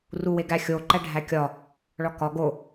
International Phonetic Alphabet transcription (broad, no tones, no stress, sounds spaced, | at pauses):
r u w e ɡ æ xʲ o ǃ æ ɖʱ æ kʲ ɒ | ɭ ɒ k ɒ ɡ o